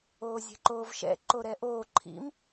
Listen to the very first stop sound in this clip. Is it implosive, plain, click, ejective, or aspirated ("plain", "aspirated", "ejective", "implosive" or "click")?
click